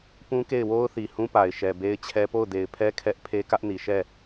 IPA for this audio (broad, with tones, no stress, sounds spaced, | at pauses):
p ũ˦ k e˦˨ ɪ̯ w o˦ ʊ̯ θ i˨ h ũ˦ p a˨ ɪ̯ ʃ ɛ˨ b e˦ ɪ̯ t͡ɕʰ ɛ˦ p o˦˨ ʊ̯ d e˨ ɪ̯ pʰ ɛ˦ kʰ ɛ˦ ʔ pʰ e˦ k ä˦ ʔ n i˨ ʃ ɛ˦˨